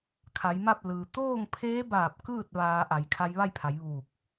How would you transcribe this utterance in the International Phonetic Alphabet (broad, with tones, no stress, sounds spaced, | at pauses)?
kʰ a˩˧ j m a˥˨ p̚ l ɯː˩ t̪ oː˥˨ ŋ pʰ eː˧˥ b aː˧˩ p̚ k ɯː˥˨ t̚ ʋ aː˧ ʔ a˩˧ j kʰ a˧ j ʋ a˥˨ j pʰ a˩˧ j ʋ uː˧˩ k̚